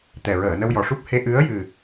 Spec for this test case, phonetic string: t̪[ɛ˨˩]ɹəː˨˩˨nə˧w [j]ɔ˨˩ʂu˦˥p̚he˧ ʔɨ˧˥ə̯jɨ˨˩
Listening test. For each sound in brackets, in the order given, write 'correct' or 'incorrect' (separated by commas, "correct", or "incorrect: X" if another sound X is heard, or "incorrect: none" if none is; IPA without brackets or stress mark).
correct, correct